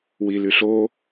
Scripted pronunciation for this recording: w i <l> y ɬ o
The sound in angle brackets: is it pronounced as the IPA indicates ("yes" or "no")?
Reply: yes